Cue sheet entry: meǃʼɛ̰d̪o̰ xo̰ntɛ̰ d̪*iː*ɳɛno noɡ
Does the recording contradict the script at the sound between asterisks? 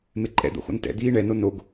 no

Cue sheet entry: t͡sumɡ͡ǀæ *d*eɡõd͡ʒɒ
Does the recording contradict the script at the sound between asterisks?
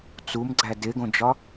no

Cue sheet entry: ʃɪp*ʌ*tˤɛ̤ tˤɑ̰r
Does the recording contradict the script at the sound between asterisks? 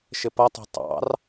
no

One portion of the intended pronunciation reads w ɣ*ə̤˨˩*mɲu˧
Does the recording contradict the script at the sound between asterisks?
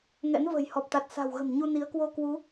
no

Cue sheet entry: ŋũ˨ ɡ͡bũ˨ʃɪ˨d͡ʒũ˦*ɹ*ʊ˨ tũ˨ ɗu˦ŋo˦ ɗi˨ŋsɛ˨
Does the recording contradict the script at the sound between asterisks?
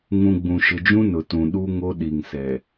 yes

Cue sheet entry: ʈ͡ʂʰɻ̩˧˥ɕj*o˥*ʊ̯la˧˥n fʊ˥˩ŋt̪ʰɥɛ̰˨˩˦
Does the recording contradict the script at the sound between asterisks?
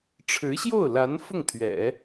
yes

